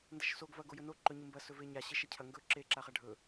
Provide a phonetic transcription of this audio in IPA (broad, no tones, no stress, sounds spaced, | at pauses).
n d ɐ ʃ s o ɡ v ɐ ɡ o j ɵ n o ǃ ɵ ɲ ɨ m b ɐ s ɵ v e ɲ a ɕ e ʃ ɐ cʰ ɐ ŋ ɡ ɵ ǁ e ǁ a χ a ɖʱ ɵ